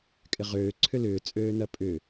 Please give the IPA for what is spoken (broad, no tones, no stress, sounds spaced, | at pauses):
kʼ ɪ ʁ øː ǀʰ ʏ l ʏː t͡sʼ øː n ɐ pʼ ʏ